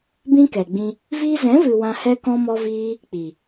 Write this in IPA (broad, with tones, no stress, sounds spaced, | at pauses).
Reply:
b ĩ˦ k ɛ˨ ɡ͡b ĩ˧ | v iː˧ z ɛ̃˨˦ v ɨ˨ w ã˧ h ɛ˦ k ɔ̃˦ m ɔ˦ v iː˦ | k͡p i˨